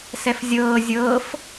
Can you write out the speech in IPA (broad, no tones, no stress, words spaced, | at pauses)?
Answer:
sɛfzʲɤː zʲɤːf